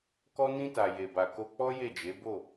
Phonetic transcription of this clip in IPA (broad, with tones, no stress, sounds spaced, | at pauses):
k ɔ˧ n ĩ˧ t a˨ j e˨ b a˨ k o˧ k͡p ɔ˦ j e˦˨ d͡ʒ e˨˦ b o˦˨